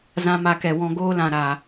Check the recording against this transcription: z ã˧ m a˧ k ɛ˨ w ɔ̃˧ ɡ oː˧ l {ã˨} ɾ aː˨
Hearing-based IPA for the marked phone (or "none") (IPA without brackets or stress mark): ã˨